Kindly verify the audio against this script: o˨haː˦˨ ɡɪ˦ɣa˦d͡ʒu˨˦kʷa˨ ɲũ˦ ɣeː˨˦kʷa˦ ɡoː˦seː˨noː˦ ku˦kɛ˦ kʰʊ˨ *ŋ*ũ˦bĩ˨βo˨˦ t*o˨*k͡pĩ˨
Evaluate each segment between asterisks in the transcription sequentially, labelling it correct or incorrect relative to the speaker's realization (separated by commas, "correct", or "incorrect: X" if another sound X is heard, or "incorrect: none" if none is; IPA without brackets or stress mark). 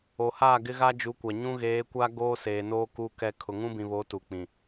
correct, incorrect: u˨